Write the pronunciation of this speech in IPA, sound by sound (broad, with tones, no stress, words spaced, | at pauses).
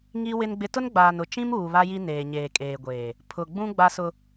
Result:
ŋi˦ wɪ˦nɡ͡bɪ˦ tʊ˦n ɡ͡baː˨nʊ˨ t͡ʃĩ˦muː˨ βa˦ji˦ neː˨ɲeː˨kʼeː˨ɡʷeː˨ | pʰʊ˨ɡ͡bũ˦ ɡ͡ba˦sʊ˦